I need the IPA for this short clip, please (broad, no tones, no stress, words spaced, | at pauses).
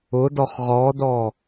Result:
ʊdɔχ ʁɔdɔ